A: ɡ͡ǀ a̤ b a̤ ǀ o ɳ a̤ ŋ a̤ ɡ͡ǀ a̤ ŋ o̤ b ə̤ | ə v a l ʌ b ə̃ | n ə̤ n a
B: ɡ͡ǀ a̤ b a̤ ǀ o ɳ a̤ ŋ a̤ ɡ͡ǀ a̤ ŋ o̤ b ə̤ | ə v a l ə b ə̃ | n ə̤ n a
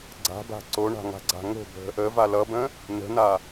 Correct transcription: A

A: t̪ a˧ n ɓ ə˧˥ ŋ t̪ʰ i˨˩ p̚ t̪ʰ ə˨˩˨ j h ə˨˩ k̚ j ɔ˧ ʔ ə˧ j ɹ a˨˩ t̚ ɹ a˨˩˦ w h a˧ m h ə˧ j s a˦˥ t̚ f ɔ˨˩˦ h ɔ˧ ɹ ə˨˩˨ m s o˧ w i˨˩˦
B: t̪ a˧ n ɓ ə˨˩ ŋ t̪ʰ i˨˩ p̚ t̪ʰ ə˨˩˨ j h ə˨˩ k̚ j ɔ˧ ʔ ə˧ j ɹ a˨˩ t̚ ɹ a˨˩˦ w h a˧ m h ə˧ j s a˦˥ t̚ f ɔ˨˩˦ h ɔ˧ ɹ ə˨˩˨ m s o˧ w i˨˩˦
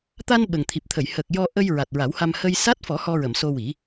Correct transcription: B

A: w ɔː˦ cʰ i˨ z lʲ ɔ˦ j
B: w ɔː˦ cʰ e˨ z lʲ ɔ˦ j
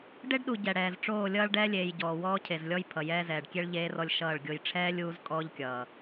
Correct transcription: B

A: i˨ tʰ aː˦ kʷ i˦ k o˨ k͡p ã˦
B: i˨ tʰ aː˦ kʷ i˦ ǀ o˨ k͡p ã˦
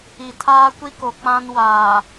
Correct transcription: A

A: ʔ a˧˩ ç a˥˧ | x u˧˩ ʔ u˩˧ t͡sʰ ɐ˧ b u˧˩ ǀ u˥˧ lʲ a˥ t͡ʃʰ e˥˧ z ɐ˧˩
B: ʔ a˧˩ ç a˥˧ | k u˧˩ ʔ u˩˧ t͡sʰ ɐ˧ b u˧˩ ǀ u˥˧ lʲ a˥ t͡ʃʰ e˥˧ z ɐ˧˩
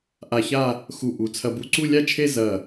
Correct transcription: A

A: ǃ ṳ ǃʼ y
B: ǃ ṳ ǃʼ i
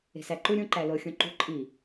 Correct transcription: B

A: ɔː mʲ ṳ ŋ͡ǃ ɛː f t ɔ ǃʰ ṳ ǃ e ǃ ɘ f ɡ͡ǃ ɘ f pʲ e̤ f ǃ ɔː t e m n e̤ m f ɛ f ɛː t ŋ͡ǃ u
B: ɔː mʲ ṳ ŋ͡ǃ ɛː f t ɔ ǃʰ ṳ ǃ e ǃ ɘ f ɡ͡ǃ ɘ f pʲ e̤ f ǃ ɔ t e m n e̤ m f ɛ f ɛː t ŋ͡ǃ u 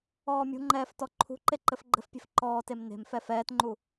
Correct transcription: A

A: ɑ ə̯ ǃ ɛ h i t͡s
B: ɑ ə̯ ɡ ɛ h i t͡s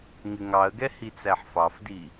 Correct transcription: B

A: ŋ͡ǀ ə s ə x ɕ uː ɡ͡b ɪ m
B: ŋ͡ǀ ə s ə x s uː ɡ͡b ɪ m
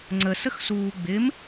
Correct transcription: B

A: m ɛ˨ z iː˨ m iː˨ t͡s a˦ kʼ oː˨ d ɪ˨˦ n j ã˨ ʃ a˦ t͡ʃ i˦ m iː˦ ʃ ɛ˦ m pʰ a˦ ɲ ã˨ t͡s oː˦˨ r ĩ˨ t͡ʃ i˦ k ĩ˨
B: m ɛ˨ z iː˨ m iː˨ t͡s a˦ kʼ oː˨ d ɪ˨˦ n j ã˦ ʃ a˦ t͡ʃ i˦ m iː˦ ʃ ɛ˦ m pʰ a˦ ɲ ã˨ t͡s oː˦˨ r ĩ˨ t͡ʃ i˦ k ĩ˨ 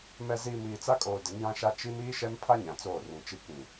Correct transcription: B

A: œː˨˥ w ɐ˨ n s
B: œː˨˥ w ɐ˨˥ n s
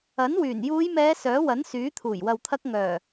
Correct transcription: B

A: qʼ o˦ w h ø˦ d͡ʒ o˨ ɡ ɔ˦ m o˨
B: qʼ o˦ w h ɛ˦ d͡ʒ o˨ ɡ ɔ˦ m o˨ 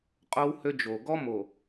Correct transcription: A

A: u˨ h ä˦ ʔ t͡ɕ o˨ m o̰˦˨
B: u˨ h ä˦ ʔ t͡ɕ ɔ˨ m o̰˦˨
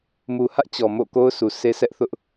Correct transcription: B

